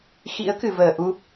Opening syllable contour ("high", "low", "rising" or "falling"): rising